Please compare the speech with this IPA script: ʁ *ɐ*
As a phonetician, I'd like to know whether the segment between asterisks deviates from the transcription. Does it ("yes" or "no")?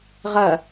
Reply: no